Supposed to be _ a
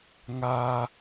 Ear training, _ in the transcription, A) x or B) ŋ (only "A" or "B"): B